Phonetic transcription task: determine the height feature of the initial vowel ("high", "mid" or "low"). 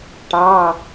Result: low